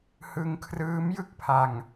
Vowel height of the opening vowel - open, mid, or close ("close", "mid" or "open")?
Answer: close